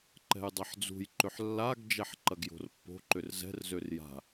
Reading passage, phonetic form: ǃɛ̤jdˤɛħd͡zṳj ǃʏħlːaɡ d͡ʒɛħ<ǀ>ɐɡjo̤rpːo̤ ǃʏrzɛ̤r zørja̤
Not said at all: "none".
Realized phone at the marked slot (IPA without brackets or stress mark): ǃ